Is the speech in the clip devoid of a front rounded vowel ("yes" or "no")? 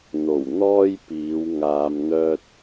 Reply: no